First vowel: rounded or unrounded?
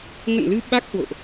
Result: unrounded